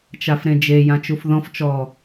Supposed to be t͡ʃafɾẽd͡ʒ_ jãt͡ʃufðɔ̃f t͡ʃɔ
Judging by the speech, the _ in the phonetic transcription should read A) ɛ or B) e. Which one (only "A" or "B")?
B